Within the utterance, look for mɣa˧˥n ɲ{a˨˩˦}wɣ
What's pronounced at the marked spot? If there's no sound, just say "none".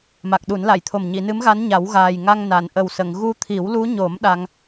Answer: a˨˩˦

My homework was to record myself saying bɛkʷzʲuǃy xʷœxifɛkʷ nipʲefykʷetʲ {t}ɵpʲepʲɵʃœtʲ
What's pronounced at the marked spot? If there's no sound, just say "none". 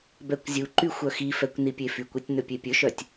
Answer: n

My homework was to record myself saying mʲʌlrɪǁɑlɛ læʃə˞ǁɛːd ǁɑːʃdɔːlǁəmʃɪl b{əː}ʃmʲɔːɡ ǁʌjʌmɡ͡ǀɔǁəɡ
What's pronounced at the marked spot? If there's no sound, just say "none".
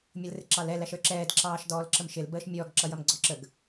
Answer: əː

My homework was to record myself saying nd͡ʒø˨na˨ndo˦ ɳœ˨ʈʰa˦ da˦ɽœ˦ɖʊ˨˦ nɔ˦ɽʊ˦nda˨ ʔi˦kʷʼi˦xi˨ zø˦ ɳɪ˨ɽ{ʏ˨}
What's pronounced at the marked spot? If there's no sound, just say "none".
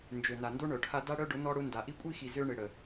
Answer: ə˨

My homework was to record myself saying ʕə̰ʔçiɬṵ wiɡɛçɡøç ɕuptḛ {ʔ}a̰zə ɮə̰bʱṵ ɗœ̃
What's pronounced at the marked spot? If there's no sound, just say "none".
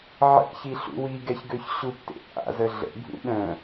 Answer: ʔ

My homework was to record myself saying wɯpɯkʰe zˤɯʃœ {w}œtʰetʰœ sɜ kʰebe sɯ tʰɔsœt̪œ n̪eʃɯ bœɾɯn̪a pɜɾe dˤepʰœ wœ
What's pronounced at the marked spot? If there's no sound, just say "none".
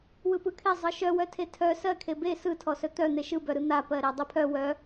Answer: w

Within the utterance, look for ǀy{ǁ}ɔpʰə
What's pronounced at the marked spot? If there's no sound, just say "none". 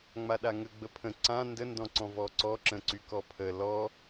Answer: k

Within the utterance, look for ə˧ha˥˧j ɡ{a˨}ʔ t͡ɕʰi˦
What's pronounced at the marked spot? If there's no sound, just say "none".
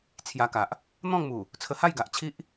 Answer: a˨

